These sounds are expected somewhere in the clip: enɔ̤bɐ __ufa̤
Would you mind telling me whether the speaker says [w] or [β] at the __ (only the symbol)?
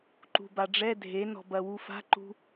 w